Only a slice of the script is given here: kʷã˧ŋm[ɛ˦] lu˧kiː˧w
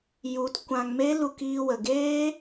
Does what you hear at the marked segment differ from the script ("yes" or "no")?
yes